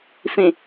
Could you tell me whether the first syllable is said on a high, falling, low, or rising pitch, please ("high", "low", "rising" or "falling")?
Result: low